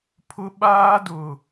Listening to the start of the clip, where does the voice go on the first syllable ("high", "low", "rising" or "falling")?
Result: high